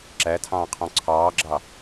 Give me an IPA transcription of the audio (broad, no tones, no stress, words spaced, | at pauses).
ǁætʰɑ̃ː qʰɔ̃ǀʰɑːɡ͡ǁɑ